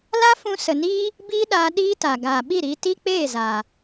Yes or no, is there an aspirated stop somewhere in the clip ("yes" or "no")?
no